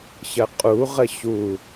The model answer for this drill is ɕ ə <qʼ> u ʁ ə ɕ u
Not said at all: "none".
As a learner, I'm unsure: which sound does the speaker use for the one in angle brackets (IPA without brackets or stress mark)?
qʼ